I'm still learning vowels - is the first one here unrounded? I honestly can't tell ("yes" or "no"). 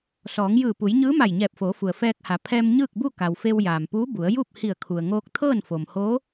no